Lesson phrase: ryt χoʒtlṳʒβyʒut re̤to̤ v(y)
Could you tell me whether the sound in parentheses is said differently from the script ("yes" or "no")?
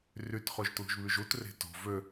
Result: yes